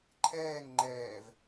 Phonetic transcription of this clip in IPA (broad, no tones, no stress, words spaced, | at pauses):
ǃʰɛːŋ ŋ͡ǃɛːv